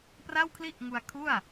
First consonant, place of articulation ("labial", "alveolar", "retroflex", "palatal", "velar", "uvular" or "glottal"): labial